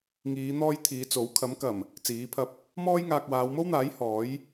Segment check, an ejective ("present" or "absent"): absent